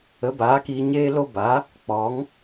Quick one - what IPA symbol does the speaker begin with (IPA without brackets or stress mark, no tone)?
ə